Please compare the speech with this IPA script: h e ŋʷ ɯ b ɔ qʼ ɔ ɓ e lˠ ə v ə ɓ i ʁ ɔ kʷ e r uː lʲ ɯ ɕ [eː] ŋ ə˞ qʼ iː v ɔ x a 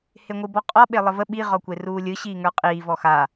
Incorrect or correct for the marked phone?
incorrect: iː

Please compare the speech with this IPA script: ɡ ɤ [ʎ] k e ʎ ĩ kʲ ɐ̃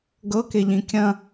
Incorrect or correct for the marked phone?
incorrect: none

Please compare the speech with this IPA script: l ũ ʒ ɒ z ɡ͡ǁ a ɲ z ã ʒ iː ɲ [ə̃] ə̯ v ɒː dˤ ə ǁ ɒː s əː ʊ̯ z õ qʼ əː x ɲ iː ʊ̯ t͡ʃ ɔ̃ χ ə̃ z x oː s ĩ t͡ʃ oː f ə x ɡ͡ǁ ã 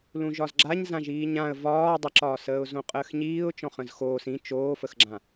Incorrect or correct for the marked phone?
incorrect: ã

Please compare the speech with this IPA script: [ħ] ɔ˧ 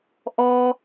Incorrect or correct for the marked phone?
incorrect: ʔ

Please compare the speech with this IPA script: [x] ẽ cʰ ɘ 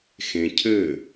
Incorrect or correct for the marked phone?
correct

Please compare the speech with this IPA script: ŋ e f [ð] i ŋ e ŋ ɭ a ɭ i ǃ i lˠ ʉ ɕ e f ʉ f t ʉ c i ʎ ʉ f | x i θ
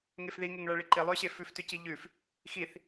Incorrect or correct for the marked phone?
correct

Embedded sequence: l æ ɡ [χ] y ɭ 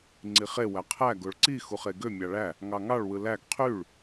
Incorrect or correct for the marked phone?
incorrect: qʰ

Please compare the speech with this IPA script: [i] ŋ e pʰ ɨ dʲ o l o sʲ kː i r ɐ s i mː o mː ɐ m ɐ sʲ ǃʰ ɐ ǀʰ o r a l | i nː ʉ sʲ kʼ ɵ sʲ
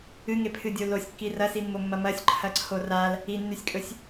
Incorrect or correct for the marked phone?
incorrect: ɨ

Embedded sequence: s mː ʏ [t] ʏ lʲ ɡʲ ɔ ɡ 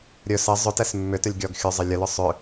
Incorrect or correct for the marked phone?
correct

